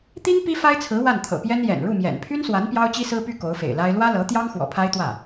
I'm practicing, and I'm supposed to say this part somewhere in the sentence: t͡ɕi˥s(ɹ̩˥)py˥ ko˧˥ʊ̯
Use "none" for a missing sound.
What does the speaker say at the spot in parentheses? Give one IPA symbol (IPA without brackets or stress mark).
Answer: ɹ̩˥